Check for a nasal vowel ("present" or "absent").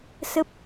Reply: absent